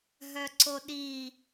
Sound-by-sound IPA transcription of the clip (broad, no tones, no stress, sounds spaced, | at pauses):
ɦ œ ǀ o ɗ i